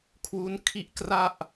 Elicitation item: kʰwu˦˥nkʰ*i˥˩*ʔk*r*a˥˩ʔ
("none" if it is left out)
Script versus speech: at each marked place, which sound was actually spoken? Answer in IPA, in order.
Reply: i˥˩, r

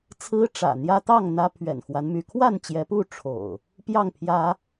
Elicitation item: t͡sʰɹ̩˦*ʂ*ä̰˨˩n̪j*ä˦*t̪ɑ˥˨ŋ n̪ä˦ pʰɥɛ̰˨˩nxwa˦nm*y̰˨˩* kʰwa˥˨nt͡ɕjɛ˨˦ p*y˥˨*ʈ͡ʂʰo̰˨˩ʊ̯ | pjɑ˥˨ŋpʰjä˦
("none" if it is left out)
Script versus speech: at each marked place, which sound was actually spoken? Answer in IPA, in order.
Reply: ʈ͡ʂ, ä˦, y˨˦, u˥˨

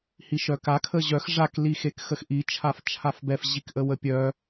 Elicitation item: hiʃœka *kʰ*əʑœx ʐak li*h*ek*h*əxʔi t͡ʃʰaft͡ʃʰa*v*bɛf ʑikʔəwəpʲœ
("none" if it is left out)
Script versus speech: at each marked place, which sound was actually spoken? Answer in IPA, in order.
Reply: kʰ, x, x, f

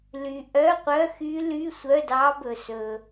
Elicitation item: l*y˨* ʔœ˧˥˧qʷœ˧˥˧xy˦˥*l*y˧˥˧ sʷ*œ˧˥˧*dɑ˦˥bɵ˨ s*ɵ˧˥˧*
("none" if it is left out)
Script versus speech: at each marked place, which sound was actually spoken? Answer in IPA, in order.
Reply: y˨, l, œ˧˥˧, ɵ˨

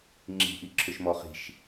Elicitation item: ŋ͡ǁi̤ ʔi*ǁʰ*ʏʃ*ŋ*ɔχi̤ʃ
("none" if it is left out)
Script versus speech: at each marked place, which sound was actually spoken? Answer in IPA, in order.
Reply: ǁʰ, m

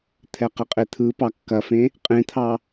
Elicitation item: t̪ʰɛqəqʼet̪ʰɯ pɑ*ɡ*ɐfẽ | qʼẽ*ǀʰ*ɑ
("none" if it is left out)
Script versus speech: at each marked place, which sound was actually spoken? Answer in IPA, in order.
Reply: kː, t̪ʰ

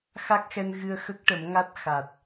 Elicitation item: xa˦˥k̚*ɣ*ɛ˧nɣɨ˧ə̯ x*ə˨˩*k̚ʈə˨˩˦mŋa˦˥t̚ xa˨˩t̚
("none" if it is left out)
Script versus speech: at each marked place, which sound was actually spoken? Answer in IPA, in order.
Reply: x, ə˦˥

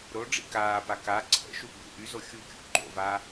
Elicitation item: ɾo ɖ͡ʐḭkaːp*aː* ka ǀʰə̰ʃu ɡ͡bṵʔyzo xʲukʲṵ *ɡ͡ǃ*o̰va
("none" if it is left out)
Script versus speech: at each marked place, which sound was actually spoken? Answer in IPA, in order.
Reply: a, ɡ͡ǃ

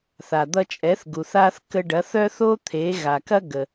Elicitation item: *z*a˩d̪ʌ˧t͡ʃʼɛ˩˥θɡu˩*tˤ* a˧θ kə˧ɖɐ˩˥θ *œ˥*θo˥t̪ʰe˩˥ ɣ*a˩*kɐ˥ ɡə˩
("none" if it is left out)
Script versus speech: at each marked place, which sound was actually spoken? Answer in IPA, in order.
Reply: θ, θ, œ˥, a˩

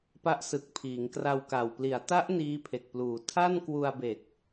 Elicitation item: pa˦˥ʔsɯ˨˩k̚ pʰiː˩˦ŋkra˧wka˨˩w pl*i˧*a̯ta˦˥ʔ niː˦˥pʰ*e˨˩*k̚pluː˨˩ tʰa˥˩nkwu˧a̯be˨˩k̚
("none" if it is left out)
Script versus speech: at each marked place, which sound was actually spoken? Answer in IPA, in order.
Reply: i˩˦, e˨˩

